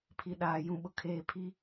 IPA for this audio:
pʰ i˨ ɗ aː˨ j ũ˨ ɓ ʊ˨ kʰ eː˨ pʰ i˦

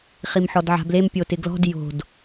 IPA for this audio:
χ i m ħ ɔ d ʕ a̤ b l e m pʲ o t ɪ ɡ l ɔ̤ d j o̤ d

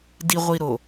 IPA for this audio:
d i ʁʷ i ɾ o

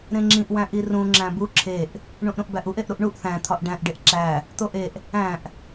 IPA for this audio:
ɾ ẽ ŋ͡ǁ ĩ ʔ w æ̃ ʔ i r ũ ŋ͡ǁ æ̃ b u ǁʰ e ʔ | ɳ ũ ʔ ɾ ũ ʔ b æ ʔ u ʔ e ʔ ɾ u ʔ ɳ u ʔ θ æ̃ t̪ʰ ɒ ʔ ɖ æ̃ ʔ ɖ e ʔ ǁ æ | t̪ o ʔ e ʔ | æ̃ ʔ

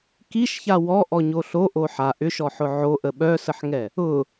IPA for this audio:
k i ʃ ç a w ɔ ʔ ɔ ɲ o ɬ o ʔ o ħ a ʔ ʏ ʃ ɔ ħ ʊ ʕ o ʔ ə ɓ œ s ə ħ ŋ ɛ | ʊ

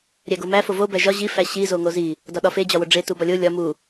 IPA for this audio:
ɾʲ æ ɡ o m æ f o v o b æ ʒ ɒ ʑ i f æ ɕ i z o ŋ o z i | d ɒ ɗ ɒ f e d͡ʑ ɒ w o ɖ͡ʐ e t u b ɒ lʲ o lʲ ɒ m u

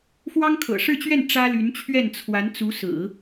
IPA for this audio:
f w ɑ˥ ŋ kʰ ɤ̰˨˩ ʂ ɻ̩˥˧ t͡ɕ ɥ ɛ˥˩ n ʈ͡ʂ ä˥ l y˧˥ n t͡ɕʰ ɥ ɛ˥˩ n t͡sʰ w a˧˥ n t͡s u˧˥ s ɹ̩˨˩˦

